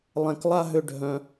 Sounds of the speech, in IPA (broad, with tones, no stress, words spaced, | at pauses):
lˠɛ̃˧k lˠa˦ɦʏ˧ ɖʱœ̃˧